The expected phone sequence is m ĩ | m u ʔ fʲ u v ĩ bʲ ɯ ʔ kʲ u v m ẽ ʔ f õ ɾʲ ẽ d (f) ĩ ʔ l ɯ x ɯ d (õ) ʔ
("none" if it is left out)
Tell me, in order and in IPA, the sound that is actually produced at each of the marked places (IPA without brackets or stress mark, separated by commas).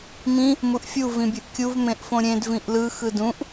v, ũ